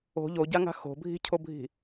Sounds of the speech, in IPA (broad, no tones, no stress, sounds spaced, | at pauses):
o̤ ʎ o ɟ a ŋ a̤ x o̤ bʱ i̤ cʰ o bʱ i̤